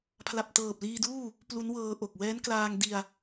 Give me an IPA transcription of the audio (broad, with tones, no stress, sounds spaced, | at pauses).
pʰ l a˨˩ p̚ t ɤː˨˩ p̚ l iː˧ d uː˥˩ | p l u˦˥ n w ɤː˧ ʔ o˨˩ k̚ w ɛː˦˥ n k l aː˧ ŋ d i˧ a̯